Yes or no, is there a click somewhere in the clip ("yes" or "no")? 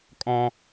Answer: no